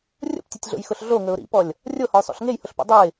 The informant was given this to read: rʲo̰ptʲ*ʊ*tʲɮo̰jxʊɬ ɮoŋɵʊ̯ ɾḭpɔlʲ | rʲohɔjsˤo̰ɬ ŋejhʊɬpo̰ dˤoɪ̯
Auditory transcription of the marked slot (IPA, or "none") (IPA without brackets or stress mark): ɵ